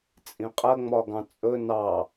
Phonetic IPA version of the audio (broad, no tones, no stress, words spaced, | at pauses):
t͡sʼĩqʼə ŋ͡mɒɡɑ̃t͡sʼɵ nɑ